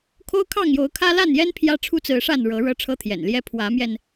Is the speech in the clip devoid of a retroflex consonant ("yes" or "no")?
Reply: no